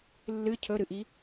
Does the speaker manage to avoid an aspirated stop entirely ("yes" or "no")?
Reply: no